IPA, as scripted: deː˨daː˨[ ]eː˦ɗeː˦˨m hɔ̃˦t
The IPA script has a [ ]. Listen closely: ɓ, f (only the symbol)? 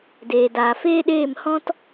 f